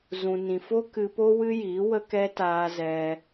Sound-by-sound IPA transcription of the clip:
z ũ˨ n ĩ˨ f o˦ k ɨ˧ p o˦ w ɨ˦ j iː˨˦ w ə˦ k ɛ˦ t aː˧ z ɛ˧

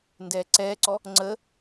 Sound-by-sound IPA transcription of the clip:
n d ɛː ǀ ɛː ǀ ɔ | ŋ͡ǀ ə

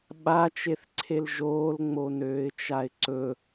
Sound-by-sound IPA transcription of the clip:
ɓ a t͡ʃ e θ ǀʰ e l ʒ oː l ŋ͡m o n øː ɪ̯ t͡ʃ a ɪ̯ ǀ ɵ

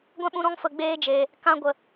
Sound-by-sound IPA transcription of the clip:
ɡʷ ɛ̃˦ ɓ ũ˧ ɾ ɔ̃˧ ŋ f ə˨ ɡ͡b eː˧ d͡ʒ eː˨ | k ã˧ ɡʷ ə˨

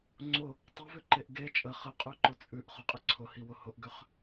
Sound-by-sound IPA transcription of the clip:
ŋ͡ǀ ʊ | tˤ ʊ v ʏ ǃ e ʔ ɡ e t͡ʃʼ ə χ ə qʼ ʉ ǃ ʊ t͡sʼ ʉ ʔ χ ʊ qʼ ə ǀʰ ʊ h i w ʊ h ʊ ʔ ɡ ʏ χ

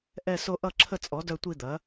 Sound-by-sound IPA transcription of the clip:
ʔ ɛ˥˧ s o˥˧ ʔ ʌ˥˧ ǁʰ ə˥˧ t͡sʼ ɔ˩˥ d œ˥˧ tʷ i˥˧ d̪ ɐ˩˥

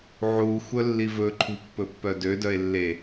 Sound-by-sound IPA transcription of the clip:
ʕ u xʷ œ lː i v ɵ ǃʰ ṳ pː ɵ pː œ d ø d œ e̯ lː e

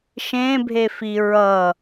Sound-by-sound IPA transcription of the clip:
ʃ ẽ bʱ e f i ɹ ʌ

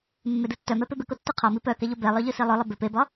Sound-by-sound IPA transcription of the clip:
mː e d ɯ tː œ m ɛ p e b ɪ k o tː œ qʰ ɒ m i p œ k ɛ ʎ o b ɛ lˠ œ ʎ ɯ s i lˠ œ lˠ ɪ b ɪ p e b ɒ

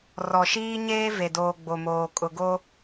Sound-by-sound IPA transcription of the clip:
r ɔ˨ ʃ iː˦ ɲ eː˦ v e˨ d oː˨ ɡ͡b o˨ m oː˨ kʼ ʊ˨ ɡ o˦

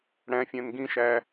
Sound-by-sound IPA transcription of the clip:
ɽ æ̃ fʲ æ̃ n ɡ ĩ ʃ æ

